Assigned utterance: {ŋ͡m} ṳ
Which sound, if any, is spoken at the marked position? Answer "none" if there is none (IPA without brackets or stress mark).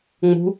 ŋ͡m